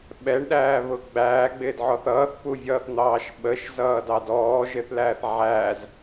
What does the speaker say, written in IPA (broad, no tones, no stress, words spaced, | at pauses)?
ɓɛɳɗæːβʊ ɡ͡bæːɡ͡bɪːdʕɔθ ʌːθpuvʲʌːθn̪ɑːʃ ɓəʃzʌːdɑd ɔːʒɪθlæːθ ʕæz